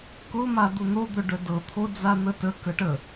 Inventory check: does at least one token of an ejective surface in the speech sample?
no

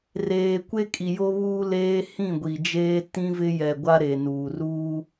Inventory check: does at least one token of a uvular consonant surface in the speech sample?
no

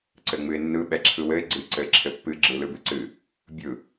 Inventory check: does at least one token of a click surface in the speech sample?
yes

